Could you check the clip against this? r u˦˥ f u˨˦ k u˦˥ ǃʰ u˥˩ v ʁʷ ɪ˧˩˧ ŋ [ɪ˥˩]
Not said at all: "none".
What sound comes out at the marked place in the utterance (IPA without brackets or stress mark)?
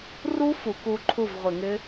ɪ˦˥